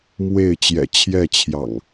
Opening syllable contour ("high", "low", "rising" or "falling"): falling